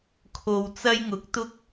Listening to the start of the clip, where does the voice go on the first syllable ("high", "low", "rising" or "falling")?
low